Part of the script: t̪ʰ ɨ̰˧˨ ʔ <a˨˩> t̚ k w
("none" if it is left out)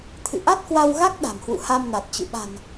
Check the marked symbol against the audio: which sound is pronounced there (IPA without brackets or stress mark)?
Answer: a˦˥